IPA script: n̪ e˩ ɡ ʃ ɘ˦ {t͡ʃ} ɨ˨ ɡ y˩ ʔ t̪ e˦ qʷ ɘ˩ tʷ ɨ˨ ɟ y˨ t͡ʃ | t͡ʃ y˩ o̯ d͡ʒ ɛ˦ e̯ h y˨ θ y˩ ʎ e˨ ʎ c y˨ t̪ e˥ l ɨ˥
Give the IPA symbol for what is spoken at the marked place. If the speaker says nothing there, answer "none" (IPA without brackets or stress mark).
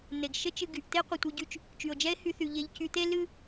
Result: t͡ʃ